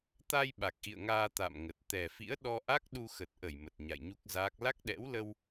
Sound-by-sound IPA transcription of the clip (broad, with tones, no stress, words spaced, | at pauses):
t̪a˧j ɓa˨˩k̚ʔḭ˧˨ə̯ŋaː˧ t̪a̰˧˨mŋə˨˩t̚ t̪ɛ˨˩fḭ˧˥ə̯ɗɔ˧ʔa˦˥k̚ ɗu˧xə˨˩t̚ʔə˧˩j mə˨˩t̚ɲa̰˧˨jɲu˦˥k̚zaː˦˥k̚ la˦˥k̚ɗɛ̰˧˥wlə˧w